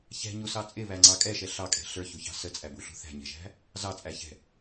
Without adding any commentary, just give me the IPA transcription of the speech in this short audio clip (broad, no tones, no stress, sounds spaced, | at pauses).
ç ɛ̤ ɲ u s ɑ t͡sʼ ɪ β æ ŋ͡ǀ ɑ kʼ ɛ ʃ ɛ ɬ ɑ kʼ ɛ̤ ɬ ə˞ ç u ç ɑ̤ s ə t͡sʼ æ b u ɬ ṳ θ æ̤ ɲ ɛ̤ ʒ æ̤ | z ɑ t͡sʼ æ ç ɛ̤